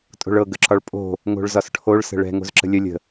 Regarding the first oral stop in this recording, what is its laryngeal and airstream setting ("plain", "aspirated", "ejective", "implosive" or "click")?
ejective